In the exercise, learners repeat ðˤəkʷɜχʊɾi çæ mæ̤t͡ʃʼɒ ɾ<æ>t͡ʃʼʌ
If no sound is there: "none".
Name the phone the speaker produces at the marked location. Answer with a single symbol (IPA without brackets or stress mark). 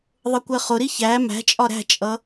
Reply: æ̤